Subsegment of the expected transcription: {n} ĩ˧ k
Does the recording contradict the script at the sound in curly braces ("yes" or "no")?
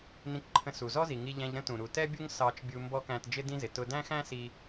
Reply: no